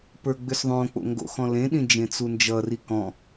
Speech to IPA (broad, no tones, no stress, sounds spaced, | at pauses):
p ə˞ ɡ͡b ʏ s ðˤ õ k͡p o̰ ŋ ɡ o̰ x ɔ̃ l ẽ ɗ ĩ d͡ʒ ẽ t͡s u n d͡ʒ ʌ r i k ɔ̃